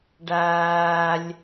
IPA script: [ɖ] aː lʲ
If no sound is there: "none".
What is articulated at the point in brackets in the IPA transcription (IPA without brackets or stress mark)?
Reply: ɖ